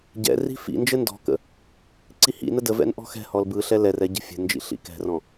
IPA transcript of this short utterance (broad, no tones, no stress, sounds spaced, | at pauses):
ɟ ɛ̰ r i̤ f ḭ n d͡ʒ ɘ n d ɔ̤ k ə̰ | ǀ i h ḭ n ə d ə v ɛ̰ n ʔ ɔ̤ x ɛ̤ h ɔ l b ɯ ɬ ɛ l ɛ r ɛ ɟ ə̤ fʲ ə̤ n d͡ʒ ḭ ɬ ḭ k ɛ̤ r ɔ̃